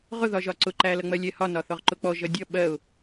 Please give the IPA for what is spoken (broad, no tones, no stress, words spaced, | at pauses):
ʁʊðɒʒɒ ǀʊǃælʌŋ͡mɜ lʲɛhɒ nɒθɔʁǃʊk͡pɔ ʒʌdʲʌ ɓɜʊ̯